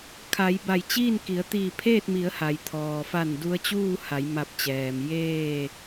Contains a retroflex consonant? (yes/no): no